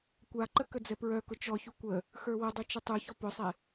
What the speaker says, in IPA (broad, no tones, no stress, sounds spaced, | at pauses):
kʷ a ǃ ə k ə d͡z ɛ p ɹ œ k ʊ t͡ʃ ɔ ç u kʷ ə | x ə˞ w ʊ dˤ u t͡ʃ ə tˤ u ç ɔ p ʊ sˤ ɛ